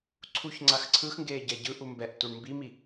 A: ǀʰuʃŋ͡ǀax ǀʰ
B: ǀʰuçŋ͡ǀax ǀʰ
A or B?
B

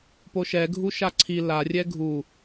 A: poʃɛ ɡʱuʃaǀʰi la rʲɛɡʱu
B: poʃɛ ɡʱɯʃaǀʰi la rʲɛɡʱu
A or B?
A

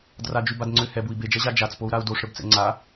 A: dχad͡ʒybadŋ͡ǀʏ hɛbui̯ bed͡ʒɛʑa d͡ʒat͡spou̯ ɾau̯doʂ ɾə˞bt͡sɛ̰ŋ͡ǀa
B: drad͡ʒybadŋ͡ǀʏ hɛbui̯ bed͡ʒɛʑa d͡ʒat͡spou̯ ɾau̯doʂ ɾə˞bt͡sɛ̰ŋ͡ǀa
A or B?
B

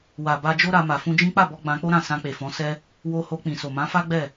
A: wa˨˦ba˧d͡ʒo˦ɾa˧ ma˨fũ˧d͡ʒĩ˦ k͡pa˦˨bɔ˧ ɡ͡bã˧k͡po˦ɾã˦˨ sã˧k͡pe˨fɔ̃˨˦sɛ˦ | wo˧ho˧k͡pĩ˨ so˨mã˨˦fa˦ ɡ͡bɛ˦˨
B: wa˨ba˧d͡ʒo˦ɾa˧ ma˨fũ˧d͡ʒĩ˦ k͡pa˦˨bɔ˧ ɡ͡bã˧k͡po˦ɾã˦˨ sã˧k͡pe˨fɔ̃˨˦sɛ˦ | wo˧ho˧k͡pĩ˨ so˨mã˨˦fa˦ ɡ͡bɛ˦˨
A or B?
B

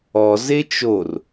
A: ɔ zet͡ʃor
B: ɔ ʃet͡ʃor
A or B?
A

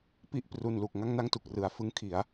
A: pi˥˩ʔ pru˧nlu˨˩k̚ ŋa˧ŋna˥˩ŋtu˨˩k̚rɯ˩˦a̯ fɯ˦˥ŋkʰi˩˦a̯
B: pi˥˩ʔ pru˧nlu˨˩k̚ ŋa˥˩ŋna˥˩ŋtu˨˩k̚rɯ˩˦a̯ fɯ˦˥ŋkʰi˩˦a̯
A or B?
B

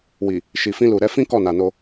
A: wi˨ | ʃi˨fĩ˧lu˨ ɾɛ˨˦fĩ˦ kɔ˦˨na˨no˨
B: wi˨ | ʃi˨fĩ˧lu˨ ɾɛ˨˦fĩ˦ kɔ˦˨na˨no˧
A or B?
B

